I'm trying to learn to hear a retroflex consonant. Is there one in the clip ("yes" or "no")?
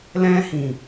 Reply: no